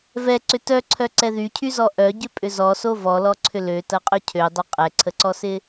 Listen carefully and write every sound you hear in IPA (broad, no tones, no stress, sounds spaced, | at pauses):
v ɛ ǀ ʏ t œ ǀʰ œ ǀ ɛ ð y cʰ y z ɔ ʔ œ ɟ ʏ pʼ ʏ z ɔ s o v ɔ l ɔ ǀʰ ʏ l ø t ɐ qʼ ʏ cʰ ø dˤ ʏ qʼ ɛ ǀʰ ə ǀ ɔ s ɪ